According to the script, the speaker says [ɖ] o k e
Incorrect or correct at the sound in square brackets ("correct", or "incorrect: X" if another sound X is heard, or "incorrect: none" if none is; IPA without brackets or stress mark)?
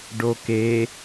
correct